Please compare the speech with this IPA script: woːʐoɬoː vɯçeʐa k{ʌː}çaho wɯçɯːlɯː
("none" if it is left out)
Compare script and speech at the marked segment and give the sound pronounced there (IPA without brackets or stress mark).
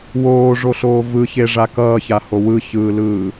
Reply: ʌː